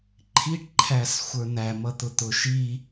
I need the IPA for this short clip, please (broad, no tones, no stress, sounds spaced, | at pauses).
ǃʰ i ʈ ǃʰ æ s xʷ ə˞ n̪ æ m ʌ t̪ ʊ t̪ ʊ ʃ i